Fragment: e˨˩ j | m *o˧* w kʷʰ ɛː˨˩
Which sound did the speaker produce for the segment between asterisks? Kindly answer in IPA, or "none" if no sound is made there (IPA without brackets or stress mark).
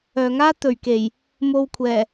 o˧